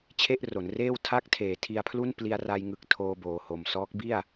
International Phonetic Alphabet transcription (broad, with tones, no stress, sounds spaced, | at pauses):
t͡ɕʰ e˥˩ ʔ r o˩˦ n r eː˥˩ w tʰ a˦˥ k̚ tʰ eː˩˦ tʰ i˧ a̯ pʰ l u˥˩ n p l i˧ a̯ r a˧ j ŋ ɯ˨˩ k̚ tʰ oː˧ b oː˨˩ h o˨˩ m s ɔː˦˥ k̚ b i˥˩ a̯